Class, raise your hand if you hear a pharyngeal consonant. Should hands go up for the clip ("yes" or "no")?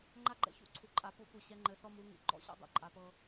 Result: no